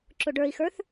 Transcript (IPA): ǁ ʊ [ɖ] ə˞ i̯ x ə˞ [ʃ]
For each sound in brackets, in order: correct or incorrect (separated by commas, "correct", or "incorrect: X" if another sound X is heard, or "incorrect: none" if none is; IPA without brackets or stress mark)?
correct, incorrect: θ